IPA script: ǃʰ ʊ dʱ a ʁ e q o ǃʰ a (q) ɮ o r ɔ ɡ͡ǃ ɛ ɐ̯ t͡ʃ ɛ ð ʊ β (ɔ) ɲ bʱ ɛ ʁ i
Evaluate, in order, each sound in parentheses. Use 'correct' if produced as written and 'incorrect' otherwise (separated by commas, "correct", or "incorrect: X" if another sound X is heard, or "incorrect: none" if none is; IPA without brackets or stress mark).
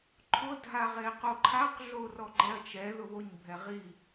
correct, incorrect: o